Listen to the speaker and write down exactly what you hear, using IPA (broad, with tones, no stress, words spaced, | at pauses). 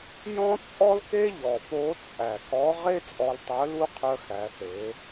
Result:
jɔ̃˥ t͡sʼɔ˥lke˥ ʎɔ˩po˧˥t͡sʼæ˩ kɔ˧˥ ʁe˥ t͡sʼɔ˧ltˤœ˧˥lu˥ qʰœ˧xæ˩˧ θe˩˧